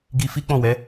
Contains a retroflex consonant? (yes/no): no